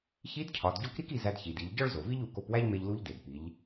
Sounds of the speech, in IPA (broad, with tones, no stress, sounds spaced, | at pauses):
ç i˧˥ d cʰ ɒ˩˧ d ɟ o˧˥ k ɾ i˥ k i˧ z æ˧ d ç i˩ d i˩˧ ʎ ɟ ɒ˥ ɭ z o˩ v i˥ ʎ u˩˧ k o˧ p w æ˥ ʎ m e˧ ʎ l u˧˥ ʎ d e˩ d p i˩˧ ʎ